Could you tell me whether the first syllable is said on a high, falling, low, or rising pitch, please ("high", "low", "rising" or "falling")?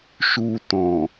low